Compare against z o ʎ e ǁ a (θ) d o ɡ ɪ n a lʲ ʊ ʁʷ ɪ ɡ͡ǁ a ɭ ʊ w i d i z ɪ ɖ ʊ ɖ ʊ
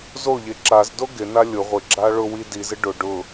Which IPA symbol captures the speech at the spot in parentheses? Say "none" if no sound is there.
z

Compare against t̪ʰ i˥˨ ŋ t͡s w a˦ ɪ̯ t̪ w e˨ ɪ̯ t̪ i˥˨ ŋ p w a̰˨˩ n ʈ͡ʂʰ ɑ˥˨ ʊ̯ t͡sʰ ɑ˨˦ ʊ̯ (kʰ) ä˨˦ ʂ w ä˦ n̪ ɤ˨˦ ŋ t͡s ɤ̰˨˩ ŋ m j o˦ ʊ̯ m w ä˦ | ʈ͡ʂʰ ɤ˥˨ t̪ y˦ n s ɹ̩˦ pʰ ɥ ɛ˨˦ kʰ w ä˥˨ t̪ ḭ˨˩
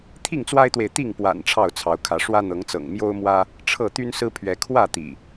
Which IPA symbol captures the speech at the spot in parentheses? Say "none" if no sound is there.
kʰ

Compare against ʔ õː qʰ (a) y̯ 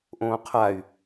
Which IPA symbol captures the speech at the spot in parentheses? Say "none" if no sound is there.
a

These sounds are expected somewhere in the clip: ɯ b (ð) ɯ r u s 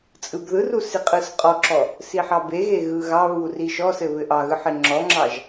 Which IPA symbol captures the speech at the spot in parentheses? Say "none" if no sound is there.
ð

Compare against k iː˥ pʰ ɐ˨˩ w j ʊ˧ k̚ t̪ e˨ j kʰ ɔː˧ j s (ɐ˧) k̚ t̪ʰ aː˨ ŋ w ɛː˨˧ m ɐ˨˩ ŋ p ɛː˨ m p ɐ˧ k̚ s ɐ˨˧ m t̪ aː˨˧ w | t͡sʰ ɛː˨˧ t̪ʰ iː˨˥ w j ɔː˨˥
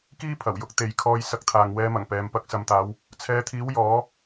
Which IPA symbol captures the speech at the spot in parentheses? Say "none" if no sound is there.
ɐ˧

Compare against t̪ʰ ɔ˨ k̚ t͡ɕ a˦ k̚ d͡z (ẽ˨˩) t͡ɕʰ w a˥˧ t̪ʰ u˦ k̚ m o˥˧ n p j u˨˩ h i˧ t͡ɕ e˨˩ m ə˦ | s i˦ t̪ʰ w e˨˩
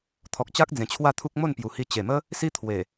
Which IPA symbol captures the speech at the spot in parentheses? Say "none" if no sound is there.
ẽ˨˩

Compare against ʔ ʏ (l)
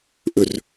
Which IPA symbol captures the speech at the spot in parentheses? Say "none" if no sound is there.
r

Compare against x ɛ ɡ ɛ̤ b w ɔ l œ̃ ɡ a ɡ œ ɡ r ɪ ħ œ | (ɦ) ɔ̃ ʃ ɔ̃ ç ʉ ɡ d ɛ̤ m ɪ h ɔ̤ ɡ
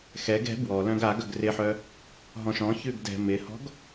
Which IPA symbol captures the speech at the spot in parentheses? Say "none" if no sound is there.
ɦ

